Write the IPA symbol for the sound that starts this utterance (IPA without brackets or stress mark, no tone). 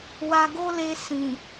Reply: w